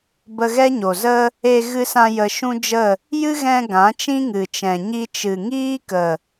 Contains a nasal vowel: yes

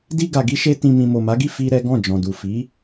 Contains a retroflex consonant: no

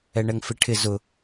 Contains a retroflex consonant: yes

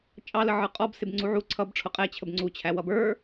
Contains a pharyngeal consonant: yes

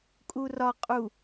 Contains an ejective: yes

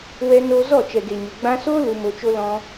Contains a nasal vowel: yes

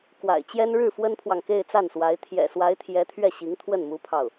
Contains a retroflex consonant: yes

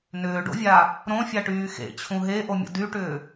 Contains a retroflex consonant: yes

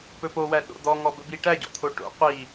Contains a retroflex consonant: yes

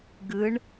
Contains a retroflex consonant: yes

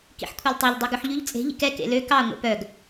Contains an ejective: yes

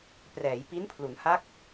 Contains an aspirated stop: yes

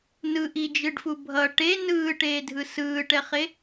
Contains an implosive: no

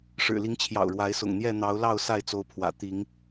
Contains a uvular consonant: no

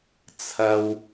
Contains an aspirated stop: yes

